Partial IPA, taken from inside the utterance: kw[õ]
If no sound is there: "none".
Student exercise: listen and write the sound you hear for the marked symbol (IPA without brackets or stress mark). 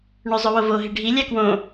õ